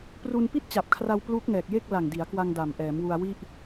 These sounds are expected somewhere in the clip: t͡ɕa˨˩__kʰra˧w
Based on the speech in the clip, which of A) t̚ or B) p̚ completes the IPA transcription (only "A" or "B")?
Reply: B